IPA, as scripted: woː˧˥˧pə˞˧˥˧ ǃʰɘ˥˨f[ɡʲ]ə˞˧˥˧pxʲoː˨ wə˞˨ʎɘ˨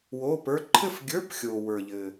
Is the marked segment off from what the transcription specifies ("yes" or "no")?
no